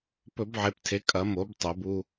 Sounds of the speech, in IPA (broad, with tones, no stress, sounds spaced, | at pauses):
p ɵ˧˩˧ b ʕ e˩˧ p tʰ e˩˧ kʼ ɐ˩˧ m o˩˧ b tˤ o˩˧ b u˧